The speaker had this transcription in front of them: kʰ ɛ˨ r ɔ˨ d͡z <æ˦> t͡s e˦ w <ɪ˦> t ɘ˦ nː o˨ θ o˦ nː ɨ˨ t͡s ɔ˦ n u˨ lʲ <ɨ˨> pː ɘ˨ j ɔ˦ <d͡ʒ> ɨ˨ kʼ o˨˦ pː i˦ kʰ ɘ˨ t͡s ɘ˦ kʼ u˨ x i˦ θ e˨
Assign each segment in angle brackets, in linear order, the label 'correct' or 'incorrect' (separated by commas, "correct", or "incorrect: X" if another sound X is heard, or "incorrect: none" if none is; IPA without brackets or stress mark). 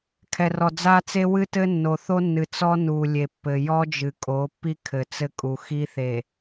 incorrect: a˦, incorrect: ɨ˦, incorrect: e˨, correct